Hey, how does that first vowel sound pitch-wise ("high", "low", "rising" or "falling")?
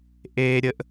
low